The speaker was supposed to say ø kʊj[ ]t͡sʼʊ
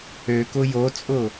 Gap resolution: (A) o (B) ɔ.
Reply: A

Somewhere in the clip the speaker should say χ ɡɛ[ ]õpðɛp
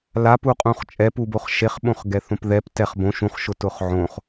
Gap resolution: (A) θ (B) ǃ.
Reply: A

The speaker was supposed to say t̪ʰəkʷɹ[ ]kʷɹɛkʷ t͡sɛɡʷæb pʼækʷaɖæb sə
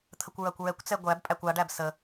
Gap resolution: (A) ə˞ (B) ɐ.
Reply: B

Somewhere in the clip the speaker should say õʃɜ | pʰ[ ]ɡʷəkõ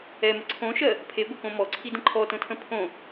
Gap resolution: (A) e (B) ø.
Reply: A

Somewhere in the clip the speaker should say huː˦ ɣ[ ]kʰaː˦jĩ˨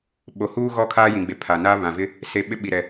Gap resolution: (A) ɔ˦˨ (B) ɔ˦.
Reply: A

